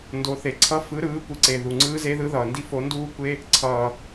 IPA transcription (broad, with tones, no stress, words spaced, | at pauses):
ndo˨˦θe˨˩ǀʰʌ˦˥ fɯ˨˦ɾɯː˨˦ kʷɯ˨˦ǀe˨˩ ðu˨˩ŋ͡ǀɯː˦˥ze˦˥ðɯ˦˥ ðʌː˨˩ndi˦˥ fo˨˦nduː˦˥kʷe˦˥ | ǀʰʌː˨˩